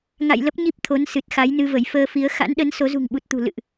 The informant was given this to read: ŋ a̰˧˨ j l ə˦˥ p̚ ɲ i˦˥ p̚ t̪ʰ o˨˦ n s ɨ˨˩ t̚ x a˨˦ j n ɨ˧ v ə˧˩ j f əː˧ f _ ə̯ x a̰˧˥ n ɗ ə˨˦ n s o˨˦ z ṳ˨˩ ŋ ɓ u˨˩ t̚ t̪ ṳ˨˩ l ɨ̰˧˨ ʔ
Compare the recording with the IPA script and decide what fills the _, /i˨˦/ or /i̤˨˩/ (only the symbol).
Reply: i˨˦